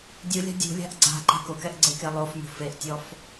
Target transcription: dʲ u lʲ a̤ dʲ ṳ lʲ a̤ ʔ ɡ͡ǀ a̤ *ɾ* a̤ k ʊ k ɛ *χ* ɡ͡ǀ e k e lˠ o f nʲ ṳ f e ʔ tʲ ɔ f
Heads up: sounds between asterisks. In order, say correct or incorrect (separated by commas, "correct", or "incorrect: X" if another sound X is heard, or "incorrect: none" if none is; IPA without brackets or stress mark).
incorrect: ǃ, incorrect: ʔ